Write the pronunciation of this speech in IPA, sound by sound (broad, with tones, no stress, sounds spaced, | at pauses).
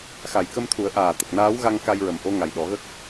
x a˨˩ j k ə˧ m t̪ʰ u˨˩˦ ə̯ ʔ aː˨˩ t̪ ə˨˩ k̚ n aː˧˥ w ɣ a˧ ŋ k a˧ j ɹ ə˨˩ m ʔ o˧ ŋ a˨˩ j ɗ ɔ˨˩˦ ɣ ə˦˥ k̚